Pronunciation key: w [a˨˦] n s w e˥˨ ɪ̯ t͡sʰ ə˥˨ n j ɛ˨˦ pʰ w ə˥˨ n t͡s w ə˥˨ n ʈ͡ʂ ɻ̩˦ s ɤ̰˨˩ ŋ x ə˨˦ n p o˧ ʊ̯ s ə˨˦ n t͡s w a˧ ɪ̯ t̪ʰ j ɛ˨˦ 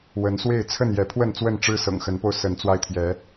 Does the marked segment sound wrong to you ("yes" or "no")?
yes